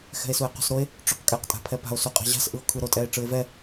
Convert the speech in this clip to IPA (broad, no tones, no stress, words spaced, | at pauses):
xɛ̤e̯sue̯qṳsɾoe̯ | ʈ͡ʂoqkʼɛq tʼa̤pʰɛpa̤o̯ suqʼa̤ʑa̤s ʔɯo̯kʰɯɾo tʼɛe̯ʈ͡ʂɯe̯vɛ